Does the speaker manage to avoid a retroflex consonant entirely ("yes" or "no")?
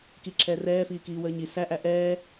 yes